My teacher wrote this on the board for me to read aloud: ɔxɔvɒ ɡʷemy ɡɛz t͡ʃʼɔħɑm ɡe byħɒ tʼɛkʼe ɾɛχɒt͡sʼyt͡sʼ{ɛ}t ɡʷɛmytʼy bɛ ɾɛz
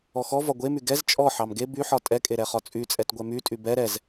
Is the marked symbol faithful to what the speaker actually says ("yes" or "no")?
yes